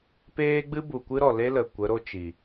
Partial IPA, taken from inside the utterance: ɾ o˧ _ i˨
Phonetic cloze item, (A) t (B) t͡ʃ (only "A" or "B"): B